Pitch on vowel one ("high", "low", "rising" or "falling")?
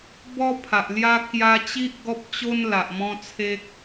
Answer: high